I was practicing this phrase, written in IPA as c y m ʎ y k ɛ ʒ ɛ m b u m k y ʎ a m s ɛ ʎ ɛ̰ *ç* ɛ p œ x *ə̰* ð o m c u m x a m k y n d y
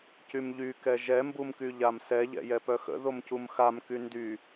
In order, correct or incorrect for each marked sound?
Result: incorrect: j, correct

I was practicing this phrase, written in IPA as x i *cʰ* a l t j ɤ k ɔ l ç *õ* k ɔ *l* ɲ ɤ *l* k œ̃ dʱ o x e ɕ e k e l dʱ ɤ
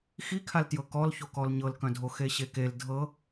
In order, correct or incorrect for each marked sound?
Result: incorrect: kʰ, incorrect: o, correct, correct

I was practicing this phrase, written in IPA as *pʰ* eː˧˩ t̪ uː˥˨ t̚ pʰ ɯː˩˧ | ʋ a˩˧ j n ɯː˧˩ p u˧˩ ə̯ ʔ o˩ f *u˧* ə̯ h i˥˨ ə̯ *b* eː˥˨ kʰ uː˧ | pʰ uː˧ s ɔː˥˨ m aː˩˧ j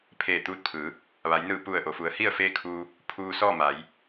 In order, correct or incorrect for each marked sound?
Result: correct, incorrect: u˩˧, incorrect: f

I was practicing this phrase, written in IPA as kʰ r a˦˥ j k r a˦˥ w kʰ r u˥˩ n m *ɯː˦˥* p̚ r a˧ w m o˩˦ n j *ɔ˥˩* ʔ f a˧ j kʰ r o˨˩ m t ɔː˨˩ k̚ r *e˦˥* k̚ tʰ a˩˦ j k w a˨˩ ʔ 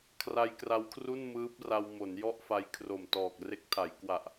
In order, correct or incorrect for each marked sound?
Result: correct, correct, correct

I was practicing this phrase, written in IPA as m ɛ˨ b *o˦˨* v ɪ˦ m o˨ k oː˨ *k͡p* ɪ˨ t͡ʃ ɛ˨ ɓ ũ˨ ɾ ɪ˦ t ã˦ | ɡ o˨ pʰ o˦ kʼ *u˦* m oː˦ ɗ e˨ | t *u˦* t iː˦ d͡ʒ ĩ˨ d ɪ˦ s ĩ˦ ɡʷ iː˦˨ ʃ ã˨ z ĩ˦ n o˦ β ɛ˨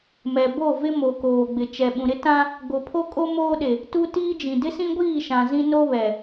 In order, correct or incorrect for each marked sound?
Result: correct, incorrect: ɡ͡b, incorrect: o˦, correct

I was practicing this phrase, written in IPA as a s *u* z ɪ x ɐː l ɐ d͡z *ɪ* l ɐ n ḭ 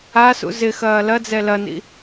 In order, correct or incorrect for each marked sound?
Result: incorrect: ṵ, incorrect: ɛ

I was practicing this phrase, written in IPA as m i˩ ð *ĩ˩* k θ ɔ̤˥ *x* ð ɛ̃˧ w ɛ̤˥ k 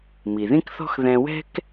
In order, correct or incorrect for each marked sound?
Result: incorrect: ĩ˥, correct

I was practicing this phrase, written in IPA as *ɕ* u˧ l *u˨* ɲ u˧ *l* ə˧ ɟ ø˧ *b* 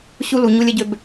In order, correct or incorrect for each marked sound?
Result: correct, correct, incorrect: lʲ, correct

